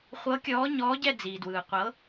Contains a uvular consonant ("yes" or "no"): yes